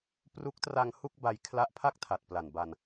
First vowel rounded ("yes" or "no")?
yes